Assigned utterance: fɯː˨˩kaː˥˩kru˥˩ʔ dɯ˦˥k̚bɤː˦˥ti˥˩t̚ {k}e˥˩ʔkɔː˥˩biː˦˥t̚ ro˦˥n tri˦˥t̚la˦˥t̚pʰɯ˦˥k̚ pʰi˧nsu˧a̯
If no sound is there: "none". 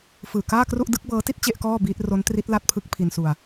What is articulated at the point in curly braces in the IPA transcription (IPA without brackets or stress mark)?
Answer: t͡ɕ